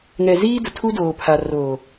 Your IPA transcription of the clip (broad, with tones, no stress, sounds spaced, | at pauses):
ŋ ɛ˨ z iː˦ d ʊ˨ tʰ u˦ d oː˨ pʰ a˨ r oː˨